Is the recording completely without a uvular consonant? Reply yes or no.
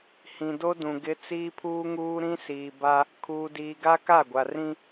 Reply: yes